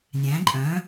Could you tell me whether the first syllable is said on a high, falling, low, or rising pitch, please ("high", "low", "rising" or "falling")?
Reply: rising